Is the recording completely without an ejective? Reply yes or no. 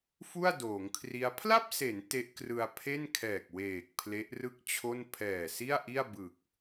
yes